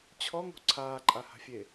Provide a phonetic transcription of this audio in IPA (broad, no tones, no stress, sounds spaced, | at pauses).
t͡ɕʰ ɔ ŋ o̤ ǀʰ aː ǃʼ a h a̤ fʲ e